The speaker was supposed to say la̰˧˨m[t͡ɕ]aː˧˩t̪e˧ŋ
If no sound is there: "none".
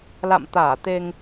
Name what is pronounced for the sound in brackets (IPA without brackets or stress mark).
t̪